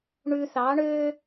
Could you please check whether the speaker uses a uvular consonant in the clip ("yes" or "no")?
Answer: no